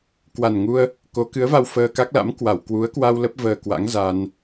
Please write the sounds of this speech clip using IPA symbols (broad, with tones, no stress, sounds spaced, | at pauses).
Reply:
k w a˨˩ n ŋ u˧ ə̯ | k o˨˦ k ɨ˨˦ ə̯ v a˧ w f əː˧ k a˦˥ k̚ l a̰˧˥ m k w a˧˩ w k w u˨˦ ə̯ k w a˧ w l ə˦˥ p̚ v əː˧ k w a̰˧˥ ŋ z a˧ n